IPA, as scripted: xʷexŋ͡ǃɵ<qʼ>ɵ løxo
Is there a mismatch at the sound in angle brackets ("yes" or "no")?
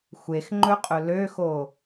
no